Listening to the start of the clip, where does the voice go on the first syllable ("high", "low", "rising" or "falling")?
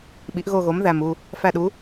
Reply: rising